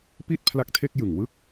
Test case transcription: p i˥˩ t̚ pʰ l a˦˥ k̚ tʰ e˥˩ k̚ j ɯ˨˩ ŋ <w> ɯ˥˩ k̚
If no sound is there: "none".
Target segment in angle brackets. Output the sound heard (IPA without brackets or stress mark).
w